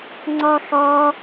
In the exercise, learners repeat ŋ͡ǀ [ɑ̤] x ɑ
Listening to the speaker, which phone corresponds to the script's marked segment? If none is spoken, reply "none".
ɑ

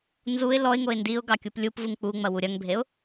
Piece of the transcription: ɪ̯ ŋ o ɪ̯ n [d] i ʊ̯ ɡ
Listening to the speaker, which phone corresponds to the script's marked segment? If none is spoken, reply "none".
d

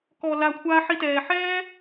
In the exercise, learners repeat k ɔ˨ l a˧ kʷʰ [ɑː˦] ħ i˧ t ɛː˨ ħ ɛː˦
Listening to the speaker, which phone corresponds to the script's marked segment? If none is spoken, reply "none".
aː˦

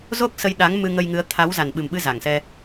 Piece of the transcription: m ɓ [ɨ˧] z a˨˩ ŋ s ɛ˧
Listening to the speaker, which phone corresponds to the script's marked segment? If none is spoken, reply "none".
ɨ˧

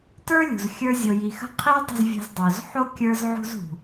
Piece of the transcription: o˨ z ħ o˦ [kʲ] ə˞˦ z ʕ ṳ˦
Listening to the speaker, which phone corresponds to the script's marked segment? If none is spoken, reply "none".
kʲ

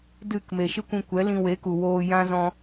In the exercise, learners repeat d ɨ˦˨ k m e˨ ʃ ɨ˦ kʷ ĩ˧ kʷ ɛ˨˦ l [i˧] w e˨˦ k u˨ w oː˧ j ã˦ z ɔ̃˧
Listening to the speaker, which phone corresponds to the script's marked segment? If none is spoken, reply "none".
ĩ˧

